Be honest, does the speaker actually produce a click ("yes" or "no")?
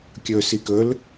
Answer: no